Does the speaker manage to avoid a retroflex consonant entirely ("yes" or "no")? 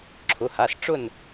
no